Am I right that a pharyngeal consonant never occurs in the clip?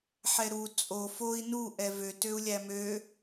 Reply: no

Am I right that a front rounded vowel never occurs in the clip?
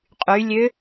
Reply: no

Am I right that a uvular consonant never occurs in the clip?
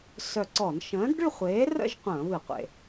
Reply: no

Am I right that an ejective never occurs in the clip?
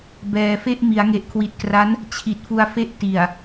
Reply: yes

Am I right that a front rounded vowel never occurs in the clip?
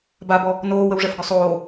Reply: no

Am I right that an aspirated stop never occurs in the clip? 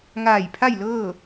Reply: no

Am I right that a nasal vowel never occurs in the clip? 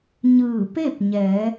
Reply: yes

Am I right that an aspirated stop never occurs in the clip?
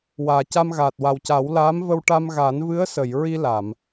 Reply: yes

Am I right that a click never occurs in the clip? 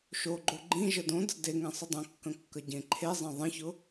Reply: no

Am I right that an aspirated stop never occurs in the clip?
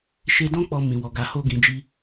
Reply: yes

